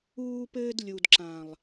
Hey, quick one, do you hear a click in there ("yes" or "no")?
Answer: yes